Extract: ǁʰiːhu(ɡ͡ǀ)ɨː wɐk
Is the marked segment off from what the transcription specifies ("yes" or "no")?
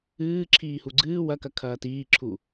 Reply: no